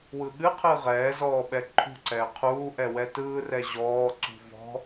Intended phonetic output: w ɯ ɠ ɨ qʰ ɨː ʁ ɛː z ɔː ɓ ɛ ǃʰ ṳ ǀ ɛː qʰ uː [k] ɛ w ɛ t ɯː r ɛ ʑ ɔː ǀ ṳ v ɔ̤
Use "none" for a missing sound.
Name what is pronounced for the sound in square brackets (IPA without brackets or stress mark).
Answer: ʔ